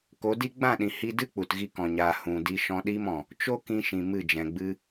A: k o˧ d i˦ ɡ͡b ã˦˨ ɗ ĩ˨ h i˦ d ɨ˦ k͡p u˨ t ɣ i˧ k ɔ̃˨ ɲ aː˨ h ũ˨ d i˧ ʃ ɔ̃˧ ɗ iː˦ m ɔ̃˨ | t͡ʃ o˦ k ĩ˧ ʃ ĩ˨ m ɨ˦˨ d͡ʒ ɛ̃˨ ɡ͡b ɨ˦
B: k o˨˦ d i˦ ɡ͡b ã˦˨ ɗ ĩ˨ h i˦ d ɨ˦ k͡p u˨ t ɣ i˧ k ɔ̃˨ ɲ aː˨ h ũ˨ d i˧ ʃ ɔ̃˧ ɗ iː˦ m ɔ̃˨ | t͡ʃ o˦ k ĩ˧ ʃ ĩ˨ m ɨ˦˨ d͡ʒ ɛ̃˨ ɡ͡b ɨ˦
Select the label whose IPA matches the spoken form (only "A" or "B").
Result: B